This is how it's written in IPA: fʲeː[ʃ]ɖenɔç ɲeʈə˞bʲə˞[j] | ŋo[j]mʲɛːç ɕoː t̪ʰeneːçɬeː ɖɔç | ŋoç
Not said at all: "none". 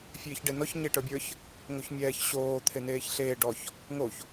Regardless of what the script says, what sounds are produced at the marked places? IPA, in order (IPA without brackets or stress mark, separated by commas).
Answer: ç, ç, ç